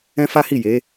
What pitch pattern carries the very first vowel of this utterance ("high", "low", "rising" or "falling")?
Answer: high